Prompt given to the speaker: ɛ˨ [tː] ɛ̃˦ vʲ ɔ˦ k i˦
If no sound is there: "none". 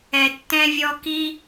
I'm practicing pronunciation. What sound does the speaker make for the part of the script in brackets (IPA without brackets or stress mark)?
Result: tː